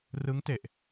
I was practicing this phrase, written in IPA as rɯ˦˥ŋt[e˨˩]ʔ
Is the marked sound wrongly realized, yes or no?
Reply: no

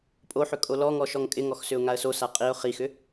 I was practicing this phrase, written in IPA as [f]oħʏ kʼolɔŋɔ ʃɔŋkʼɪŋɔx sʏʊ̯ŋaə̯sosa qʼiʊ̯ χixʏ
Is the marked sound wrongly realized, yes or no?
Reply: yes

